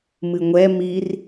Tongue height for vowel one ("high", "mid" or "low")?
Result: high